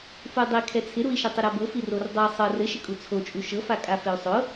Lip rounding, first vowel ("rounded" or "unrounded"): rounded